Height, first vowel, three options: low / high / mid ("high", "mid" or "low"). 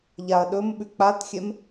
low